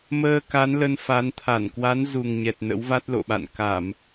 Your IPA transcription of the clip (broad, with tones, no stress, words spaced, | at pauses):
məː˧ka˨˦nlə˧n fa˨˦n t̪ʰa˧˩nkwa˨˦n zu˨˩ŋɲɛ˨˩t̚ nə̰˧˥wva˦˥t̚lo̰˧˨ɓa̰˧˨n ka˧˩˨m